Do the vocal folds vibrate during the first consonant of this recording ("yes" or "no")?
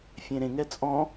no